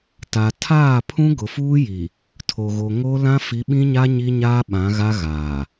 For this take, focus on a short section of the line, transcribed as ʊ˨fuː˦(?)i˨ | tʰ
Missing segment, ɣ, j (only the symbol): j